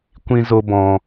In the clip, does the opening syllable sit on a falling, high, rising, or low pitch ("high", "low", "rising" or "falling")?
high